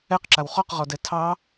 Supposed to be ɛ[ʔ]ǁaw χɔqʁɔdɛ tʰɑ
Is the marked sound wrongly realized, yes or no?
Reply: yes